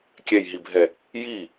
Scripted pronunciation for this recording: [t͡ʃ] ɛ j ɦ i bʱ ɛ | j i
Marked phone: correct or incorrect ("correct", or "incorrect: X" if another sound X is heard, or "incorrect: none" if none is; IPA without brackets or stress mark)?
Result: incorrect: kʲ